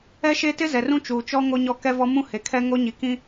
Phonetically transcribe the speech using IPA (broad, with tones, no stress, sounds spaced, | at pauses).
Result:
ɛ˦ ʃ e˦ t ɪ˦ z ɛ˨ r ũ˦ t͡ʃ uː˨ t͡ʃ ɔ˦ ŋ o˦ ɲ ɔ˦ k ɛ˦ v ɔ˦ m ũ˦ h e˨ kʰ ɛ˦ ŋ o˦ ɲ i˨ k ĩ˦